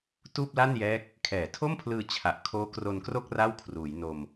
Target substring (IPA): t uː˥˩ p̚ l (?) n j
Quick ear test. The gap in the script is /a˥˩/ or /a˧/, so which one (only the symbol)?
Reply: a˥˩